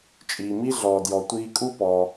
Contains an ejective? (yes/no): yes